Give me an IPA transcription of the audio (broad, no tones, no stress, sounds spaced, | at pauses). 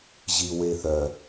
ʑ i w e θ œ